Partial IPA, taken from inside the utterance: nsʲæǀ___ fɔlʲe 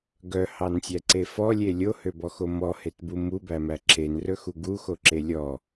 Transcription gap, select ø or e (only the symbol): e